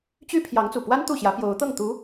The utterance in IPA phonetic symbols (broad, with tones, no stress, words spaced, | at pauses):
t͡ɕy˥ pʰjɑ˧˥ŋt͡su˨˩ pwa˥n t̪u˥˩ɕjä˧˥pjo˧˥ʊ̯t̪ɤ˥˩ŋ t̪u˧˥